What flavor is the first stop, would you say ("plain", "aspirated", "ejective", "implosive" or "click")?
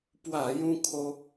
plain